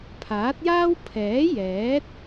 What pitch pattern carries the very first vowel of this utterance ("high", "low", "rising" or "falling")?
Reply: rising